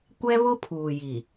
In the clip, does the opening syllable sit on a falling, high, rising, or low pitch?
high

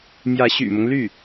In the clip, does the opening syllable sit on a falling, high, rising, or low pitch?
rising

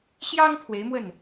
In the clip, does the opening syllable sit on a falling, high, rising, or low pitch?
high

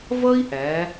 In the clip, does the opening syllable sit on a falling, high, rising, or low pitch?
high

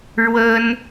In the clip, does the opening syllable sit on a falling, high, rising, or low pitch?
high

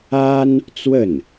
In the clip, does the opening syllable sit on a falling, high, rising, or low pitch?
high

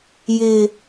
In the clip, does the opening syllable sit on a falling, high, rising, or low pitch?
low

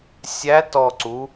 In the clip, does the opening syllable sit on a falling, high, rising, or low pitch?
rising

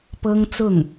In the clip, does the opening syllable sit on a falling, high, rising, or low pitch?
high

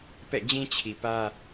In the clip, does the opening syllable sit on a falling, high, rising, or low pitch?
falling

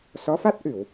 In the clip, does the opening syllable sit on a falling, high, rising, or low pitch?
rising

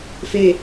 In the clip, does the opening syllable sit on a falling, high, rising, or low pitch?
low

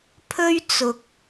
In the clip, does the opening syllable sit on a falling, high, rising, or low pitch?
high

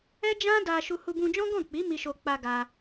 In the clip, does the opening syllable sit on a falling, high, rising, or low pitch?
high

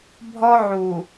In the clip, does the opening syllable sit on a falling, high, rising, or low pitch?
high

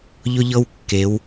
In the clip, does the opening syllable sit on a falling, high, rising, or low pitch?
high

